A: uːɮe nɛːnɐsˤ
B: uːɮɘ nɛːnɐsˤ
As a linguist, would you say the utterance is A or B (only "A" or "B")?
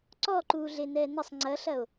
A